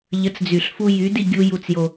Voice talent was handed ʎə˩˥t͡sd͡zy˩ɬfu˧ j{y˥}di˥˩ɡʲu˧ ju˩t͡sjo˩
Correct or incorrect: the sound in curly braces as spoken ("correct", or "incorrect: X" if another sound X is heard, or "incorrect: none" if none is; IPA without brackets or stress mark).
incorrect: y˩˥